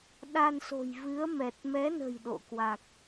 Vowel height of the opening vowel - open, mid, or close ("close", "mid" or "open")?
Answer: open